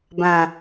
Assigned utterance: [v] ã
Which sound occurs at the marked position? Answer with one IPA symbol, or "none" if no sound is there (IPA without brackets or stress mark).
b